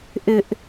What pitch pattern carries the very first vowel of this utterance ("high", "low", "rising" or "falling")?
high